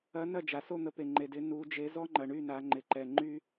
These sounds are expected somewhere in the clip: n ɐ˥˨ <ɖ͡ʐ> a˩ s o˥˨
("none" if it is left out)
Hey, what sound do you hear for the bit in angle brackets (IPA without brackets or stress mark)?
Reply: d͡ʒ